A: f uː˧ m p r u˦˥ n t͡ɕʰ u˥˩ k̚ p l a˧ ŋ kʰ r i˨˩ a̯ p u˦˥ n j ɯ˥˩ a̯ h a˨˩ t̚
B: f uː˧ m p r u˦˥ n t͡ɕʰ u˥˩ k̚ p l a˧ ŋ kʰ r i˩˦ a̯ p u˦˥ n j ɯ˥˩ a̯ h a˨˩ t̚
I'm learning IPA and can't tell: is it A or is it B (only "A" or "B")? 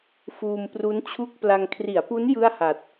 B